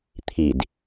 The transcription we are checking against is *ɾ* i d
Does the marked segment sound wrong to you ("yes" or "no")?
yes